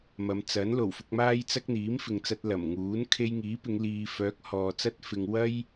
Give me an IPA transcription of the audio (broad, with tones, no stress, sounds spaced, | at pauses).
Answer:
m ɐ˨˧ m t͡s ɐ˨˥ n l o˨˩ w f ʊ˧ k̚ m aː˥ j t͡s ɐ˥ k̚ n̪ iː˨˥ m f ɪ˨ ŋ t͡s ɐ˧ t̚ l ɐ˨˩ m ŋ uː˨˥ n kʰ e˧ j ŋ iː˨˥ p ɪ˨˧ ŋ l iː˨ f œː˨˥ k̚ h ɔː˨ t͡s ɐ˥ t̚ f ɪ˨ ŋ w ɐ˥ j